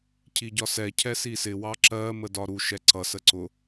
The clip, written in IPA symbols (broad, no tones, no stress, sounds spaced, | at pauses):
cʰ i ɟ ɒ s ɛ cʰ ɛ s i s ɪ w ɑ ǁ ɜ m ə d ɒ ɾ u ʃ ɛ ǀ ʌ s ə ǀ ʊ